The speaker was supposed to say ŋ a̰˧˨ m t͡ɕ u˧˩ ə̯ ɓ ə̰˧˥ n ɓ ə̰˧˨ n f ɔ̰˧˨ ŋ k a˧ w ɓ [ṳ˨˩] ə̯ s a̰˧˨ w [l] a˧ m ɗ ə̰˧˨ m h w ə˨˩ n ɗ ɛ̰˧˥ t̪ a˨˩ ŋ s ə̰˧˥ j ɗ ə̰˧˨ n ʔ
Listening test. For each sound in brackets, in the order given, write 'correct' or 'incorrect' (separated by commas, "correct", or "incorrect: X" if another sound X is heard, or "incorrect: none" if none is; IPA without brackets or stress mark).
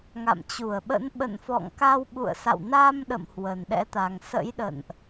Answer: incorrect: ṵ˧˨, incorrect: n